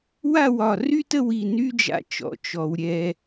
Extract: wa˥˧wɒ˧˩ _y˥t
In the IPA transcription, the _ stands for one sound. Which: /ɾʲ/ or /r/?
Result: r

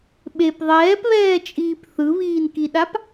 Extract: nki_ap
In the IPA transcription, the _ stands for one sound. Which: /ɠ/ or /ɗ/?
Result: ɗ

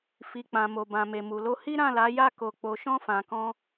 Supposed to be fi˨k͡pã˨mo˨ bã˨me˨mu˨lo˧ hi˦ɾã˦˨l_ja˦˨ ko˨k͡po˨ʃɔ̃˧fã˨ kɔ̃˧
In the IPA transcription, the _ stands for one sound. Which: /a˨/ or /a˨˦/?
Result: a˨˦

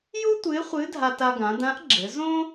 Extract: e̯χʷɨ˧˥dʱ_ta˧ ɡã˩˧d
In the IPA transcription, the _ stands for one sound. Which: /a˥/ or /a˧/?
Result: a˧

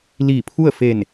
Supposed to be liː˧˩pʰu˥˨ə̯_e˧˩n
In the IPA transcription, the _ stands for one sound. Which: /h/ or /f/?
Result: f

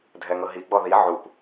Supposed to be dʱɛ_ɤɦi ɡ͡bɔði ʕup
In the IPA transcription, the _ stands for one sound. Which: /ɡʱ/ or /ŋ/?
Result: ŋ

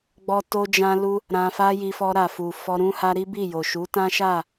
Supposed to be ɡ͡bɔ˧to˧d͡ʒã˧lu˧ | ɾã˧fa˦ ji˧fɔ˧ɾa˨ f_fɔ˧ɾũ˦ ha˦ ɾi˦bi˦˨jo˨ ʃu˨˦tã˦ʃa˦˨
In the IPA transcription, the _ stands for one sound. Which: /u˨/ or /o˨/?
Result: u˨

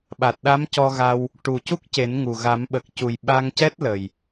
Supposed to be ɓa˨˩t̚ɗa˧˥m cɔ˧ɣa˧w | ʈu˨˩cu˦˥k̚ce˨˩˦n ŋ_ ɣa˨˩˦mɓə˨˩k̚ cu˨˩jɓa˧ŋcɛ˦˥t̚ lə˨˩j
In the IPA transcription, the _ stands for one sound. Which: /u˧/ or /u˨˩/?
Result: u˨˩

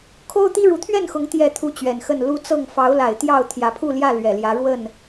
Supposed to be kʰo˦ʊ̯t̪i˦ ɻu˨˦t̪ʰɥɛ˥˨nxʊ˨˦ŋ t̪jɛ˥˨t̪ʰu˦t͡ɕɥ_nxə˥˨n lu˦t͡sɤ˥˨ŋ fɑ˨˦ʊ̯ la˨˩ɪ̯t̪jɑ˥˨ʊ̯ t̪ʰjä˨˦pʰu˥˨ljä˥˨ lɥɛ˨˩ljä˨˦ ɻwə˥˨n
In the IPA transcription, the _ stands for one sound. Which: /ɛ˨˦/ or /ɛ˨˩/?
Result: ɛ˨˩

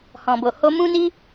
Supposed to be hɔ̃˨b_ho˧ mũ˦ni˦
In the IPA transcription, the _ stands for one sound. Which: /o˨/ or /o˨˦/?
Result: o˨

